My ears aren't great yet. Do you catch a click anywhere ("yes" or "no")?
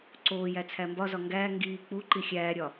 yes